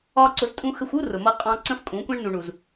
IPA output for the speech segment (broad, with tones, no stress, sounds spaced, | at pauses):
ɒ˦ ǀ ʊ˧ z tʼ ũ˦ x ə˧ xʷ u˦ r ʊ˨ m ʌ˧ qʼ ɑ̃˧ ǀ ə̃˦ f kʼ ũ˨˦ kʷ ɛ̃˦ ɳ n u˨ ɳ u˨ z